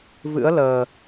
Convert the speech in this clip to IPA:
vɨ̰˧˥ə̯ ləː˨˩

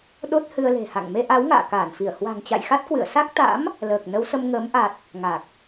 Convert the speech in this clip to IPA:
ɗo˦˥t̚hɨ˧ə̯le̤˨˩ha̰˧˨ŋ me˧ʔa˨˦w ŋa̰ː˧˨ kaː˧˩nfi˧˩ə̯ hwa̤˨˩ŋt͡ɕa̰˧˨j xa˦˥t̚kwɨ̰˧˨ə̯ sa˦˥k̚t̪a̰˧˥m | ləː˨˩k̚ nə˨˦wsə˧mŋəː˨˦m ʔa˨˩t̚ | ŋa˨˩k̚

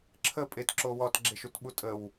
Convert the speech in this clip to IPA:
ǁʰə pʼetǁo wɔtɡ͡ǁeʃ utɓutʼəw

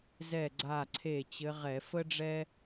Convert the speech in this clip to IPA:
zɛ˧˩ ɡ͡ǀa˧˩ǀʰe˧˩ t͡ɕɘ˨˦ʁɛ˧˩˧ fə˦ɖ͡ʐɛ˦

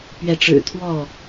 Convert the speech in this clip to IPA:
pɥɛ˨˦ʈ͡ʂɻ̩˨˩t̪ʰwɔ˥˨

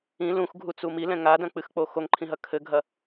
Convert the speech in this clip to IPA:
ĩ lũxɡʱut͡su milɛ̃ ŋadɐ̃k͡pɨxk͡po xoŋǃʰĩɦɐ kʰɘɡʱɐ

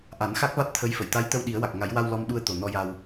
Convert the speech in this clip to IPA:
ʔa˨˩˦nxa˦˥k̚va˦˥t̚ t̪ʰə˧˥jfə˨˩˨j t̪a˧˥jt̪ə˧w ɗi˨˩˦ə̯wa˨˩k̚ŋa˨˩˦jwa˧w lɔ˧mɗu˧ə̯ t̪o˨˩nɔ˧ja˧w

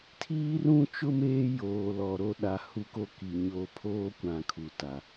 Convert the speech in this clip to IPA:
tʰiː˦rũ˦t͡ʃʊ˦m eː˦joː˨lɔ˨ ɾo˦ɗa˨˦ hu˦ko˦ ki˨ɲo˦˨ pʰoː˦kʷã˨ kʰu˨ta˨

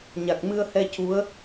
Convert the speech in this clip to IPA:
ɲa˨˩k̚mɨ˧ə̯hɛ˧ cu˧˥ə̯

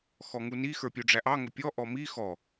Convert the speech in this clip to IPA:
xɔŋuni xə˞pʲuɖ͡ʐæʔɑ ŋʊpʲɔ ʔɔmi xɔ

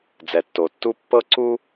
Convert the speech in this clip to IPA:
d͡zɛ˨tːo˨tːu˦ pːɤ˦ǀu˦

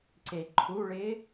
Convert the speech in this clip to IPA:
ǀeǃʰuɭɪ

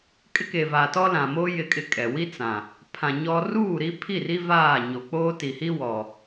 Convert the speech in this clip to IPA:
kʼɪ˦keː˨vaː˨tɔ˦ lã˨moː˦ jɪ˦kʼɪ˦kʼɛ˨ wi˦ t͡sã˨ | pʰã˨ ɲɔ˦ ruː˦˨ɾi˦pʰi˦˨ri˦ vaː˦˨ɲo˨ k͡poː˦ti˨hi˦ wɔ˨

